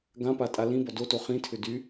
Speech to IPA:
ɡ ã p a tʼ a l ĩ b ɔ d o t o χ ĩ tʰ ʏ d y

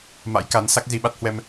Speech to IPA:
m a̰˧˥ j k a˨˦ n s a˦˥ k̚ z i˧ ɓ a˦˥ t̚ h w ɛ˧ m

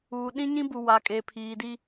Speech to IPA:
uː˨ ɗ ĩ˦ ɲ ĩ˦ b u˨ w a˨ kʼ e˨ pʰ iː˨ d i˦

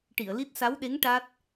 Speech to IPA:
ʈ i˨˩˨ ə̯ l i˦˥ t̚ s a˧˥ w ɗ e˧˥ ŋ ʈ a˦˥ t̚

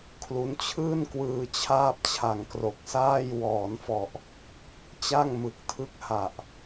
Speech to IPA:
kʰ l u˦˥ n t͡ɕʰ ɯː˥˩ n k w ɯː˧ t͡ɕʰ aː˥˩ p̚ t͡ɕʰ a˨˩ ŋ k r o˨˩ k̚ s aː˥˩ j w ɔː˩˦ n f ɔ˨˩ ʔ | t͡ɕ a˥˩ ŋ m ɯ˨˩ k̚ tʰ ɯ˦˥ k̚ h a˨˩ ʔ

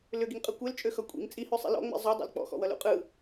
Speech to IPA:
l ʏ ɡ i ŋ qʼ ɯ kʷ e l t͡ʃʼ ø x ʌ kʷʼ ḭ ŋ t͡sʼ i h ø sˤ ḭ l ɔ̰ ŋ͡m ḛ zˤ o dˤ ḛ l k͡p ɔ̰ x ɔ̰ w ʌ l ṵ qʼ ɯ

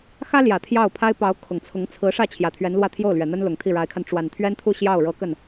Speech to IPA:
x ä˥ l j ä˨˩ t̪ʰ j ɑ˥˩ ʊ̯ pʰ a˥ ɪ̯ p ɑ˧˥ ʊ̯ kʰ ʊ˨˩ ŋ t͡sʰ ʊ˧˥ ŋ t͡sʰ ɹ̩˧˥ ʂ ä˥˩ t͡ɕʰ j ä˨˩ t̪ʰ ɥ ɛ˧˥ n l w ä˥˧ t̪ʰ j o˥˩ ʊ̯ l ɥ ɛ˨˩ n̪ ə˥ n l ʊ˨˩ ŋ t̪ʰ i˥˩ ɻ a˧˥ ɪ̯ kʰ a˧ n ʈ͡ʂ w a˨˩ n t̪ʰ ɥ ɛ˥ n t̪ʰ u˥˧ ɕ j ɑ˥˩ ʊ̯ ɻ ɤ˧˥ k ə˥˩ n

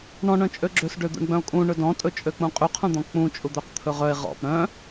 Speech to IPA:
ɳ ɔ̃ ɳ œ̃ t͡ʃʼ ø ɡ͡ǁ ø s ɖ ø d̪ ṵ ɳ ɡ͡b œ̃ o̯ kʼ ũ ɳ ɵ d ɔ̃ tʼ ɵ t͡ʃʼ ø k͡p ũ qʼ y qʰ ũ d̪ ɔ̃ k͡p ũ t͡ʃʼ u d̪ œ q t̪ʰ ɵ ʁ œ e̯ ʁ ɔ̰ p ɾ œ̃

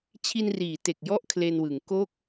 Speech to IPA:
t͡ɕʰ i˧ n r iː˩˦ t e˨˩ k̚ j ɔ˦˥ ʔ kʰ l e˧ n w ɯ˩˦ ŋ k o˥˩ k̚

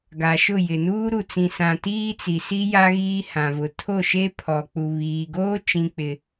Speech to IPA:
ɡ a˨ ʃ ʊ˦˨ j ɪ˨ n uː˦ ɾ u˨ t͡s ĩ˨ s ã˨ t iː˦ t͡s i˨ s i˦ j a˦ ɣ iː˦ h ã˨ v ʊ˨ tʰ o˦˨ ʃ e˦ pʰ ɔ˨ k͡p u˨ β iː˨ ɡ oː˦ t͡ʃ ĩ˦ k͡p ɪ˦

